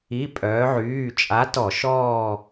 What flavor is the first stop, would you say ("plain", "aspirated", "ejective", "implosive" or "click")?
ejective